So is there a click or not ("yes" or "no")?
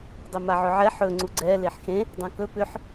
yes